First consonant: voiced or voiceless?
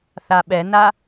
voiceless